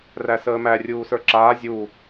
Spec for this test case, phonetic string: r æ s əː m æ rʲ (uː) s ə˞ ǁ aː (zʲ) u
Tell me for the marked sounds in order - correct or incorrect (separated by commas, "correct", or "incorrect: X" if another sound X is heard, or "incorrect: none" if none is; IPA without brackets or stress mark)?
correct, correct